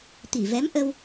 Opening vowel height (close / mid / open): close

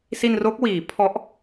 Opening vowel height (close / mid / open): close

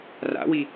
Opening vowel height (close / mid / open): open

